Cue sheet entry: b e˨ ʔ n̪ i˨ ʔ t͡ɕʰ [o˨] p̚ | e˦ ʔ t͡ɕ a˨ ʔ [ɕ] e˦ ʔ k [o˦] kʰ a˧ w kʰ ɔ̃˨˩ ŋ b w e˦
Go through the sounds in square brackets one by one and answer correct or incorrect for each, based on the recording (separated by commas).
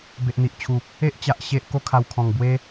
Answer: incorrect, correct, correct